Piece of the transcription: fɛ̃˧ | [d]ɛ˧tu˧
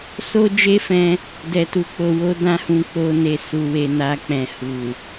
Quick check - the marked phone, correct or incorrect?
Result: correct